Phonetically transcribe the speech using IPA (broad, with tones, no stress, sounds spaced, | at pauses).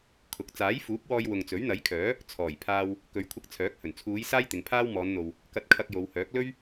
kʰ ʊ˨˥ k̚ t͡s aː˨˥ j f uː˨˥ p̚ w ɔː˧ j w ʊ˨ ŋ t͡s ɵ˨˥ ɥ n̪ ɐ˨˥ j kʰ œː˨˥ | t͡sʰ ɔː˨˩ j pʰ aː˧ w | k ɵ˨˧ ɥ kʷʰ ɪ˧ k̚ t͡sʰ œː˨˥ k̚ h ɵ˨˩ n t͡sʰ uː˨˧ j s aː˥ j t̪ ɪ˨˧ ŋ pʰ aː˥ w m ɔː˨˧ n n̪ o˨ w | k ɐ˧ t̚ kʰ ɐ˧ k̚ j o˨˧ w h œː˨˥ k̚ l ɵ˥ ɥ